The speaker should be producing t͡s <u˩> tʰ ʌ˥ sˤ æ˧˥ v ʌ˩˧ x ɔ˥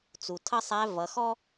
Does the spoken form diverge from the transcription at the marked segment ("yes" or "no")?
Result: no